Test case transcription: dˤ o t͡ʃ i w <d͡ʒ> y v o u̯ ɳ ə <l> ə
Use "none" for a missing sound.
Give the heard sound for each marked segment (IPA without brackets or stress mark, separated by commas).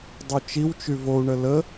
t͡ʃ, l